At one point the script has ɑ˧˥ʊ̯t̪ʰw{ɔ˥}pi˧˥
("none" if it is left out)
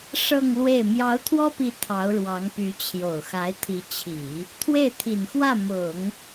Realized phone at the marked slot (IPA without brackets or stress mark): ɔ˥